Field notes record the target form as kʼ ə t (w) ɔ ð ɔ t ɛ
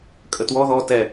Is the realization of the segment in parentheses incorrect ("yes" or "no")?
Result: no